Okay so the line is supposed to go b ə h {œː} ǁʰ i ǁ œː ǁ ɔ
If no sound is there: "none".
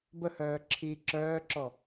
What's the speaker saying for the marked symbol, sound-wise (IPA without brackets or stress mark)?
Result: œː